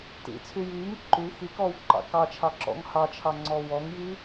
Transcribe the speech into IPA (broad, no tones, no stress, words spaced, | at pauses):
tḭt͡sʰy jiːŋ ǃʉ xikɔːwǃɑ̰ kɑt͡ʃʰɑǁɔ̰ŋ hɑt͡ʃʰɑŋ͡ǀɔ wɔŋji